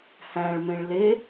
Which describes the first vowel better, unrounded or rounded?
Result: unrounded